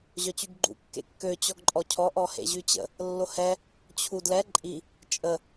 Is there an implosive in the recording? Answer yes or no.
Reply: no